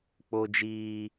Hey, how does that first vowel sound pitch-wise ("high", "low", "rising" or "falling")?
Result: high